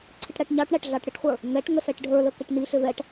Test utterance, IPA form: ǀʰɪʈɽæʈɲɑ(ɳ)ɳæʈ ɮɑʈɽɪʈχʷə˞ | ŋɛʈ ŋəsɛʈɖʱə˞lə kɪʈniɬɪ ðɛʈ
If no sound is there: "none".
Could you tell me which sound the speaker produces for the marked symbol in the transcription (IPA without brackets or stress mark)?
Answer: ʈ